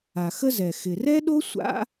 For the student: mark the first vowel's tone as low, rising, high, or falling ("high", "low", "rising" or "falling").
low